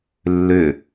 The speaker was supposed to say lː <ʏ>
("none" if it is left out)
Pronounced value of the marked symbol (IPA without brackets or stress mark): ʏ